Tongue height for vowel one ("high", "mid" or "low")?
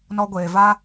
mid